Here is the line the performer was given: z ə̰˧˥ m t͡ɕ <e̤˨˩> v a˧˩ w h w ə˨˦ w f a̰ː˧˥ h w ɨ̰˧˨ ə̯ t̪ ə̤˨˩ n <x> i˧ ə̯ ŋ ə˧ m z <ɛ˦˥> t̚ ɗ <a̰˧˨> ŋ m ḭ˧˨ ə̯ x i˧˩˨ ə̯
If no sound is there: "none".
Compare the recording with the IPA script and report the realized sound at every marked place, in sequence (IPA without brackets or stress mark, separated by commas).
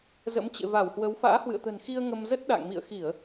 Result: ḛ˧˨, x, ə˦˥, a̰˧˨